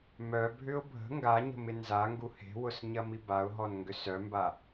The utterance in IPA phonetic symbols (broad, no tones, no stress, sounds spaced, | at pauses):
m œ bʱ ʏ ʊ̯ bʱ ə̤ ŋ ɡ a ɲ ə̤ m ɪ n z a ŋ ɡ u h e̤ w ʊ s ɲ ɐ m i b a ʊ̯ ɦ ɔ n ŋ ɡ ʏ s œ m b a